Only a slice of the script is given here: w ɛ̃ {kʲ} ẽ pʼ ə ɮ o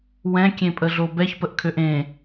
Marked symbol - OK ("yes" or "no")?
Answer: yes